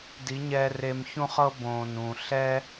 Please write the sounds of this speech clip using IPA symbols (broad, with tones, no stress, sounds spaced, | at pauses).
d i˨˦ ɲ ɛː˧ r e˧ m ç ũ˦ χ ɤ˦ b õː˨ n ũ˨ ɬ ɛ˦